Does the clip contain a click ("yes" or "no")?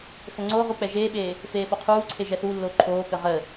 yes